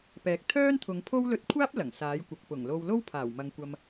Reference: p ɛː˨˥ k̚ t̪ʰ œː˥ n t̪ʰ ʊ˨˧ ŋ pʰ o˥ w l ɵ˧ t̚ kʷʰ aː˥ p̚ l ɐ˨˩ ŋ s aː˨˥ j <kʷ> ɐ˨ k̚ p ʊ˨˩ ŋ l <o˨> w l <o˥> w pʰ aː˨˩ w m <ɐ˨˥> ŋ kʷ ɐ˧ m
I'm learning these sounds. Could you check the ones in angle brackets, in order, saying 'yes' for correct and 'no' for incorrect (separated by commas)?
yes, no, yes, no